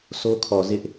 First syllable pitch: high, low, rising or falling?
high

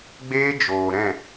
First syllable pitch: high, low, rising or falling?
high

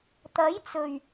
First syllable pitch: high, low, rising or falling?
rising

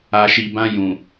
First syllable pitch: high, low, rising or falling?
low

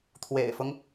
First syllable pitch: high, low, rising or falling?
low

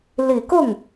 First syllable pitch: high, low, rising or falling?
low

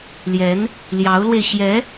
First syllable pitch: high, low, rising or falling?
rising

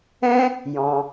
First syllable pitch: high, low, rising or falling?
high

